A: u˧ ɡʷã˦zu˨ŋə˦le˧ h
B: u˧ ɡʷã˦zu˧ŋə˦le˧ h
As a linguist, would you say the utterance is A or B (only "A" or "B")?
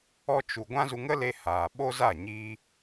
B